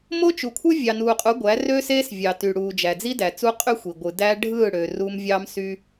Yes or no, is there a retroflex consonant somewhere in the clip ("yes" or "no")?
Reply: yes